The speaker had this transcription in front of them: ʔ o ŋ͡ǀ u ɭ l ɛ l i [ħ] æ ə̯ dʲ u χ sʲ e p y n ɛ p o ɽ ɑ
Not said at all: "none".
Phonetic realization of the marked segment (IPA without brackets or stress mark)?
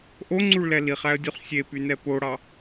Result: χ